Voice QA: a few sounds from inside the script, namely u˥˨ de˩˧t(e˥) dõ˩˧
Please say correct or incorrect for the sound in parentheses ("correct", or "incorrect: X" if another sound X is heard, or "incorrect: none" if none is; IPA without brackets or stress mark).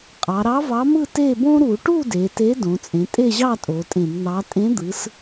incorrect: e˨˥